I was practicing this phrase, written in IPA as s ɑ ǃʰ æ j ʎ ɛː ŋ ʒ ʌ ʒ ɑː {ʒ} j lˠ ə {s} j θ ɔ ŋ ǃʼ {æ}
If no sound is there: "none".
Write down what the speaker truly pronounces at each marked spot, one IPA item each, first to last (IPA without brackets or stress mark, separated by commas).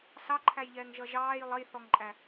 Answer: none, none, æ